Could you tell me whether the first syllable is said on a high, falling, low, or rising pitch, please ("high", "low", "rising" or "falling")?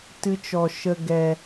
high